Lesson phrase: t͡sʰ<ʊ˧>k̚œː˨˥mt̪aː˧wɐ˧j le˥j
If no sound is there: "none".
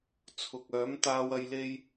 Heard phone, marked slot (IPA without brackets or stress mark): ʊ˨